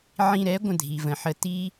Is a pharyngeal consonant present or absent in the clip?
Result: present